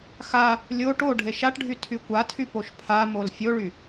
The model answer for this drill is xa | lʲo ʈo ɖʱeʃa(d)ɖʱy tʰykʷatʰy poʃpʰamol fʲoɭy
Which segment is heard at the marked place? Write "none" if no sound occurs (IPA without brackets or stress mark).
ʈ